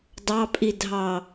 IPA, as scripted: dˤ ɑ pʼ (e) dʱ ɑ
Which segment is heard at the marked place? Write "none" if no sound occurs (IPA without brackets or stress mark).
i